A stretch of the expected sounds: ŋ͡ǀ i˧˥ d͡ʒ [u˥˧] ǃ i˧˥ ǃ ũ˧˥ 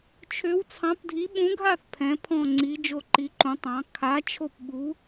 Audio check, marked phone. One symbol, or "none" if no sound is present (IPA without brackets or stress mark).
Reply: o˥˧